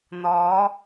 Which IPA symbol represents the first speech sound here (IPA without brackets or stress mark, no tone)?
n̪